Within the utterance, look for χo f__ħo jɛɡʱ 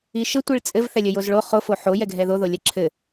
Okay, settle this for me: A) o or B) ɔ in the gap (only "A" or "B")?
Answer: A